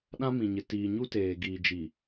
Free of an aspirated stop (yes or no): yes